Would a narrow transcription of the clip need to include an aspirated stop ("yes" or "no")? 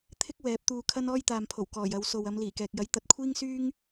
yes